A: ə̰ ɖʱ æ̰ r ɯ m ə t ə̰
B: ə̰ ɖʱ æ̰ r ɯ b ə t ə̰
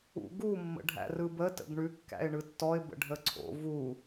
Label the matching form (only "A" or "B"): B